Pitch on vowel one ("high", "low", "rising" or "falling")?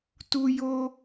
high